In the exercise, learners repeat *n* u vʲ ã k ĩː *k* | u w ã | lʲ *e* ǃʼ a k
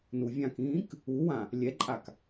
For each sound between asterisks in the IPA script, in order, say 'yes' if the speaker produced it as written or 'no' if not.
yes, yes, no

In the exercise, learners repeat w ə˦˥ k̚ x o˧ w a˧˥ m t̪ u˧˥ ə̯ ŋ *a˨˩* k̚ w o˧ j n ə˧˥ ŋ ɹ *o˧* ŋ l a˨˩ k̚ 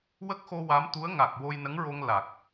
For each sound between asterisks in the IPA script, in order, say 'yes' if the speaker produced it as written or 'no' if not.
yes, yes

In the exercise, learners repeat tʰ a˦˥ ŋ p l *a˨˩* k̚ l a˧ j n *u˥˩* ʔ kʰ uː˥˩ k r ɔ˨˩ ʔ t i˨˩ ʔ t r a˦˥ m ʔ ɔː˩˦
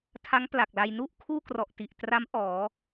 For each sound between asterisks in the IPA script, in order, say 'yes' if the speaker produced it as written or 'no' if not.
yes, yes

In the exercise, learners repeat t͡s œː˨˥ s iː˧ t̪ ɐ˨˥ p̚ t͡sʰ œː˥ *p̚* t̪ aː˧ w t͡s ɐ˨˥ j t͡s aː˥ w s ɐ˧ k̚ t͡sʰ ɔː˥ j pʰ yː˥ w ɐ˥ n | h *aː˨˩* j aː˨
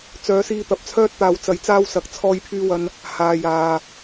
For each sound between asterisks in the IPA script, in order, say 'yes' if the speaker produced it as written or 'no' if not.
no, no

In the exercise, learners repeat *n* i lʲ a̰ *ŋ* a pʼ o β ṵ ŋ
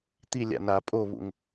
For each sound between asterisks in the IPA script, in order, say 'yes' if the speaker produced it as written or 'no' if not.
no, no

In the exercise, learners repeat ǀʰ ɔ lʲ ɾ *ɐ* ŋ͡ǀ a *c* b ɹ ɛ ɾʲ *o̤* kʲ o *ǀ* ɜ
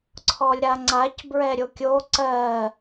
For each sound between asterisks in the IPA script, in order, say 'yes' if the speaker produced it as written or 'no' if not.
no, yes, no, yes

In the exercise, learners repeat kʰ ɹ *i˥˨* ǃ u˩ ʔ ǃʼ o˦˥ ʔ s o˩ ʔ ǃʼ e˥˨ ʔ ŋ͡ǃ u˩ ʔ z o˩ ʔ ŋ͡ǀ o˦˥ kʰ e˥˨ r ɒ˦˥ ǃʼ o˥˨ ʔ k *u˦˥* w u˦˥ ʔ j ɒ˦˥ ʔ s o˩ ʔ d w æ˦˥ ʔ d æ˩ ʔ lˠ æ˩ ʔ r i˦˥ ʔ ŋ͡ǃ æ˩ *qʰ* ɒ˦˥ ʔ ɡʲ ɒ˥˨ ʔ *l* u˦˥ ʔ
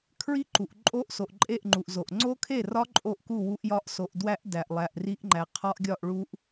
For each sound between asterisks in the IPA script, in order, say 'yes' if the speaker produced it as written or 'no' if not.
no, no, yes, no

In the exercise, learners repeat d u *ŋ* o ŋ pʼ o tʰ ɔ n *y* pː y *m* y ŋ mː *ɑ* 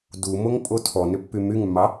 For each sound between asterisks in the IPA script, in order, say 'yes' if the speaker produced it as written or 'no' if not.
no, no, yes, yes

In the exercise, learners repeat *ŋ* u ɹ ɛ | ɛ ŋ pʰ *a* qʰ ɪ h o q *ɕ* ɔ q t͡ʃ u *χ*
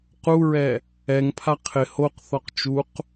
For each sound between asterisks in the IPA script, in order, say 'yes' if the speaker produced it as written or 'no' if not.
no, yes, no, no

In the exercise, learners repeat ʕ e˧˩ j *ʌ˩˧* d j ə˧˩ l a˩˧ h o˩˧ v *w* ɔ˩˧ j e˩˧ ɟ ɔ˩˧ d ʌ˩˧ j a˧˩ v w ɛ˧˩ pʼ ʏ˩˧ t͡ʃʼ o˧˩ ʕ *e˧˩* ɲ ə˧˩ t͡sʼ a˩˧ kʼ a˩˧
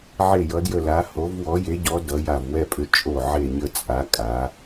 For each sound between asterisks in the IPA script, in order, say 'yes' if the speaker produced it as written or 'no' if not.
yes, yes, yes

